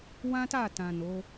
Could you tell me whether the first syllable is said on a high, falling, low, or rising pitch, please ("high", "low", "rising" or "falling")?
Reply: high